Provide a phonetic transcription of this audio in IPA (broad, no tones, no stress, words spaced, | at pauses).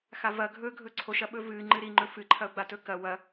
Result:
xavɐ ɡʱɵɡʱɵ ǀʰoʃɐɓɵ vɨ ŋ͡ǃɨɾiŋ͡ǃɵ fɨǃʰɐʊ̯ ɡ͡batɵkɐ wɐ